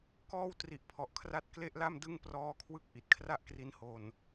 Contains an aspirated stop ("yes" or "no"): yes